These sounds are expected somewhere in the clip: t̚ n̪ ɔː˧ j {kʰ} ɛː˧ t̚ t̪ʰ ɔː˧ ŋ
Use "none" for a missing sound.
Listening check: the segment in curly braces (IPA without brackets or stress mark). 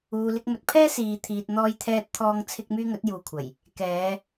t̪ʰ